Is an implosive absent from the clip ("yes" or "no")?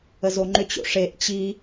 yes